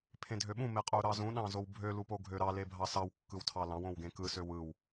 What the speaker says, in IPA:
pʰ ẽ dʱ ø ɓ ũ m e qʼ u ɾ ɑ z ũ ɗ ɑ̃ z o w bʱ ø l u p o ɡʱ ø ɾ ɑ l e bʱ ɑ s ɑ w kː ɯ w tʰ ɑ l ɑ̃ w õ w ɡ ẽ k ɯ s ø w ɯ w

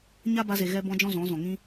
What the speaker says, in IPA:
ɲ a˦ b a˧ z e˨ ɣ ɛ˧ b ɔ̃˧ d͡ʒ ɔ̃˦ z ɔ̃˨˦ z ɔ̃˨ ŋ ĩ˧

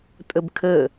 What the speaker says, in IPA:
tʼ ə b kʰ ə

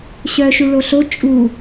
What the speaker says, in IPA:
ɕ œ ʃ u ɭ o ɬ o t͡ʃʼ u

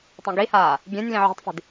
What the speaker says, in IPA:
tˤ ĩ ɡ i h aː | ɡʲ ẽ nʲ l ĩ ʕ ṳ tˤ f i̤ d

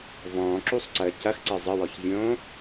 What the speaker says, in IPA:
v ɔ̃ː ǁ u sˤ ǀ əː c ɐ x ǀ əː zˤ ə w ɔ ç vʲ õː

